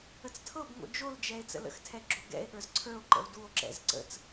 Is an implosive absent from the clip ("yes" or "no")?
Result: no